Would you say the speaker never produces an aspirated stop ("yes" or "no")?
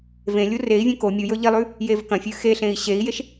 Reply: yes